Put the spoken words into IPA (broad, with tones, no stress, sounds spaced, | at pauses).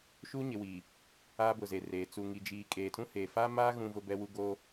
ʃ u˦ ɲ ɪ˨ w iː˨ | aː˦ b ʊ˨ z e˨ r eː˨ t͡s u˨ ŋ i˨ d͡ʒ iː˨ kʼ eː˨ tʰ ũ˦ h eː˨ f a˦ m a˦ ɣ ũ˦ v ʊ˦ b ɛ˦ w u˦ ɡ oː˦